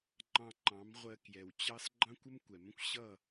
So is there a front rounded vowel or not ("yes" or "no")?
no